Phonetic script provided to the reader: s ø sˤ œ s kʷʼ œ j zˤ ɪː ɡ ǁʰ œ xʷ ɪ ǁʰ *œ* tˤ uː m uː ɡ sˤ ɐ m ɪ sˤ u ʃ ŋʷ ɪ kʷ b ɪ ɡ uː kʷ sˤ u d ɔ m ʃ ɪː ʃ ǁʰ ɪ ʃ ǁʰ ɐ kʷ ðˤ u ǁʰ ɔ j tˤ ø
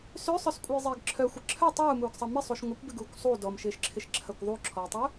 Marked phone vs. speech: correct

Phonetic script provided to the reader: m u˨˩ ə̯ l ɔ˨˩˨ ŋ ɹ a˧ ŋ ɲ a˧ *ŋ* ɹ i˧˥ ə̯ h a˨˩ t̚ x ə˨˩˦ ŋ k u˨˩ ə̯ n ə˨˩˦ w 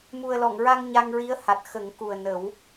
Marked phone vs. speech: correct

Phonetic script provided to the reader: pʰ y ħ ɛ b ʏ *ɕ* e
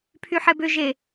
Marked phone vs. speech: incorrect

